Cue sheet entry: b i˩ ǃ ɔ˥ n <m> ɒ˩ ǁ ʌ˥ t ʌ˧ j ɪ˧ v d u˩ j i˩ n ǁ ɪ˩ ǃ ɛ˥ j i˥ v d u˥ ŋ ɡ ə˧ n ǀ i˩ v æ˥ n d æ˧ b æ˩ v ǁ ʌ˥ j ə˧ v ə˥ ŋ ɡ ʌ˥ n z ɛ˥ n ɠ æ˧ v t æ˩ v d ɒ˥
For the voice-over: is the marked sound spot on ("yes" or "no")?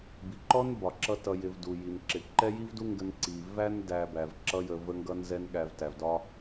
no